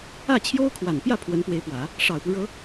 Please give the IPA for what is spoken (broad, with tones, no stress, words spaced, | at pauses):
ä˥˩ t͡ɕʰjo˥ʊ̯kʰwa˨˩n pjä˥˩ pʰwə˧˥npwe˧˥ɪ̯pwä˨˩˦ | ʂɑ˨˩ʊ̯pu˦ɻɤ˧˥